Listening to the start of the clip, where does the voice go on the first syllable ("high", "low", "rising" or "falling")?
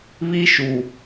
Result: high